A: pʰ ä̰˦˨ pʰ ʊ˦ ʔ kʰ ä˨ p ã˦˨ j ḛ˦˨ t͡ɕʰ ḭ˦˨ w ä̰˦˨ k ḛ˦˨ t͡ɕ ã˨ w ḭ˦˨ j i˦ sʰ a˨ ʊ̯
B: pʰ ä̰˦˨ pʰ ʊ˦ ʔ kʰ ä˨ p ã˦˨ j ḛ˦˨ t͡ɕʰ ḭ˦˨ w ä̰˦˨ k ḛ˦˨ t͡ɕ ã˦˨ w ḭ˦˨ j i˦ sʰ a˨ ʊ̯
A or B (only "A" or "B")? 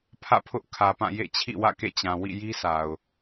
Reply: A